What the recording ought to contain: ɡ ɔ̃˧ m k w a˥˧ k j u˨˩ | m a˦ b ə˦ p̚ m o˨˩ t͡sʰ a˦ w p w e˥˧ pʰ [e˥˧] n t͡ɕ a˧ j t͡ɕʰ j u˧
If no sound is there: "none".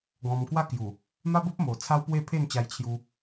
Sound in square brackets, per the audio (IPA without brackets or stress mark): e˥˧